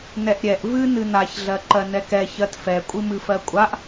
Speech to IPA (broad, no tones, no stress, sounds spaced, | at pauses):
n ɛ ʔ ɾʲ ɛ ʔ v ɨ n ɨ n a ç ɮ ɜ ǃ ɜ n ɛ k ɛ ç ɜ t f ɛ kʷʼ ɨ m ɨ f ɜ kʷʼ a ʔ